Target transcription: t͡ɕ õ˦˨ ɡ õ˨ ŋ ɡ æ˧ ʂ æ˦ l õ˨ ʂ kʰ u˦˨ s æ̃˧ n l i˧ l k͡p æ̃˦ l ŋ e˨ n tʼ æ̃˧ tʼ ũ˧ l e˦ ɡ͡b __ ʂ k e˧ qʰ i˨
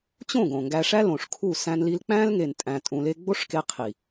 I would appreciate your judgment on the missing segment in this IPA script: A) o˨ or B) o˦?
B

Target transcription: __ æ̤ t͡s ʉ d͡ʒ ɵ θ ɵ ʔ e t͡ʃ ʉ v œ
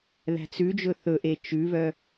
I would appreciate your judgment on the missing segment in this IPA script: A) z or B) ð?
B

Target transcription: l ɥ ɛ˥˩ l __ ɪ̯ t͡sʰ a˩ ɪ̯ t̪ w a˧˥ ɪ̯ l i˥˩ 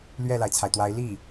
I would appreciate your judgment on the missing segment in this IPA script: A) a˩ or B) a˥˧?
A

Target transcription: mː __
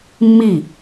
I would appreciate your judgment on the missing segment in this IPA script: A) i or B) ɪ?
A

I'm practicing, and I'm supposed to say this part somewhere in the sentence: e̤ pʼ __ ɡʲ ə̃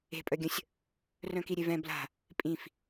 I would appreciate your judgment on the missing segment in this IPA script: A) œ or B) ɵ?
A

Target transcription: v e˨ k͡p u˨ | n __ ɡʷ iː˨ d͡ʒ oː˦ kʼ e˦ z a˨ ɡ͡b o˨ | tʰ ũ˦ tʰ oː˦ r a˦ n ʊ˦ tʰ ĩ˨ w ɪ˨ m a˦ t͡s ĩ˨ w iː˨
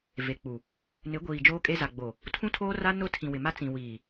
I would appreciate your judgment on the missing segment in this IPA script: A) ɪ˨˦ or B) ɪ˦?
A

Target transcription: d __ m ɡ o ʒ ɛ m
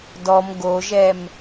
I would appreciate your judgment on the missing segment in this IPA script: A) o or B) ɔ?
B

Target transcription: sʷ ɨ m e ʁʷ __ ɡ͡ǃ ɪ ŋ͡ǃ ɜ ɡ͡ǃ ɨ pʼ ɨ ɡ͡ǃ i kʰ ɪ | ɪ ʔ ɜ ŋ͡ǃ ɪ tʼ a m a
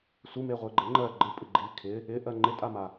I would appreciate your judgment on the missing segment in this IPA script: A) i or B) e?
B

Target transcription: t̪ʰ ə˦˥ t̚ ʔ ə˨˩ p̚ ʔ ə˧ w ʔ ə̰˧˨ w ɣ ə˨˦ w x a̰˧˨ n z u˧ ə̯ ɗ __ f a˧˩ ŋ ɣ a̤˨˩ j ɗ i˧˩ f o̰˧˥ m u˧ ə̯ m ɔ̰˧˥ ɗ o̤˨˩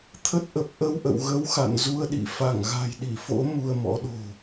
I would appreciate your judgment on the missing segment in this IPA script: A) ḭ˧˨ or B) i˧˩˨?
A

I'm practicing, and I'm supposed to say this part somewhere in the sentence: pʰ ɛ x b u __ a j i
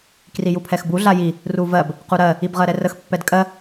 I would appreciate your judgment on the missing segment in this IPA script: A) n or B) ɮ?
B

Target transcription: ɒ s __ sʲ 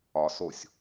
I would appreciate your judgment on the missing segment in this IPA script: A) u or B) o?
B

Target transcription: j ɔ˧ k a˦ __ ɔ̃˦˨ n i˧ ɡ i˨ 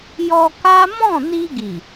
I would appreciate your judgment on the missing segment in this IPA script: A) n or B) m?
B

